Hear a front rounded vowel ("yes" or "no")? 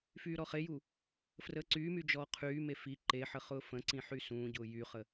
yes